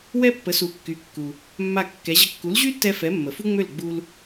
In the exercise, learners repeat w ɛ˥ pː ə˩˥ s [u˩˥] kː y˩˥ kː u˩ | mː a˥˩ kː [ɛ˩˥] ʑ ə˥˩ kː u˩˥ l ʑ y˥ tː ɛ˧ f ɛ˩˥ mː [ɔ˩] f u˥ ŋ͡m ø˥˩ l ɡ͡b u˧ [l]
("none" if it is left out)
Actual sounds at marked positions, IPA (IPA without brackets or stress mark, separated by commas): u˩˥, ɛ˩˥, ə˩, l